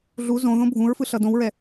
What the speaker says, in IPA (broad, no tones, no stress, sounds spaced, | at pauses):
ɮ u z õ ð õ bʱ ũ ɹ f ɯ ɬ ʌ d õ w ɹ ɛ